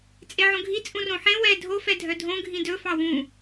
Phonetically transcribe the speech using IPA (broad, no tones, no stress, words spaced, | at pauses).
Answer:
t͡sʼeʕõɡʱi t͡sʼũrõħẽ wɛ dʱo fɛdʱœdʱõ ɡʱĩdɵ fɑwũ